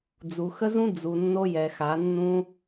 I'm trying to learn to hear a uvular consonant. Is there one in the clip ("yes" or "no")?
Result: no